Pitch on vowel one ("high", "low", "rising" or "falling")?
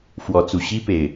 rising